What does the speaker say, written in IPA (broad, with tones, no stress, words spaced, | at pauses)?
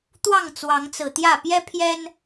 t̪wɑ˥˨ŋt͡swɑ˨˦ŋt͡sɹ̩˨˩t̪jä˥˨ pjɛ˦pʰjɛ˦n